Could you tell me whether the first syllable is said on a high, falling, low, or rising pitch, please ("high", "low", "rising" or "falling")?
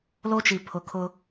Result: high